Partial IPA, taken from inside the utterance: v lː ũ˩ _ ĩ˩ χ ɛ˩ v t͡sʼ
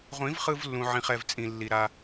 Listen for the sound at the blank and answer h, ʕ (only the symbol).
ʕ